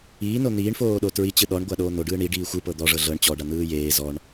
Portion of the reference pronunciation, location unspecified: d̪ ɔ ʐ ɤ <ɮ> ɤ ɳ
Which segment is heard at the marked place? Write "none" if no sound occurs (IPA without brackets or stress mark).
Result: ɮ